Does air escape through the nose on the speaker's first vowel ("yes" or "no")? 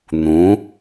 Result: yes